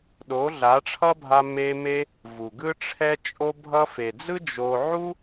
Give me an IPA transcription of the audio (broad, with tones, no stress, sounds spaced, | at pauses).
ɗ o˨˦ ɮ a˨˦ ʈ͡ʂʰ ʌ˦ bʱ a˧ m e˧ m e˧ | v u˨ ɡ ɯ˦ ʈ͡ʂʰ ɛ˦ t͡ʃʼ o˧ bʱ ʌ˧ f e˨ d͡z ɯ˦ d͡ʒ o˧ ʕ u˦